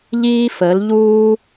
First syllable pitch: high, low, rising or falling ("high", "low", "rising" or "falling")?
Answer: high